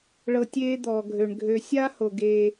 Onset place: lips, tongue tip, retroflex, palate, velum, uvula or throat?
retroflex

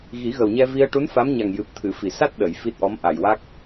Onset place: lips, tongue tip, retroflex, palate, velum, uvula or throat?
velum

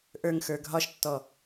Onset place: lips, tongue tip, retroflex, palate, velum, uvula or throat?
throat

